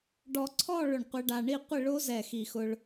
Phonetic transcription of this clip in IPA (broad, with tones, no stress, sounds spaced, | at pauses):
ɖ ɔ˧ ǀʰ ɔ˥˧ ɭ ʊ˧˩ ɳ qʷ e˧ ɖ a˧ ɳ i˥˧ qʷ ɪ˥˧ ɭ o˥ z ɛ˧˩ x i˧˩ x ʊ˧ ɭ